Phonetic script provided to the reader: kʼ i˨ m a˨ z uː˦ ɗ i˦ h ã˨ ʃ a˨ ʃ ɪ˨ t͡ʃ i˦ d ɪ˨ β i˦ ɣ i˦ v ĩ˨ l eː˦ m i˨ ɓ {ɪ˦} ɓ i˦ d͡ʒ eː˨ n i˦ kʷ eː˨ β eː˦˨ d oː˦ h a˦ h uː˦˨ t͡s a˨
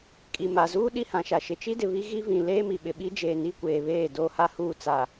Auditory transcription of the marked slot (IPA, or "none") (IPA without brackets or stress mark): ɪ˨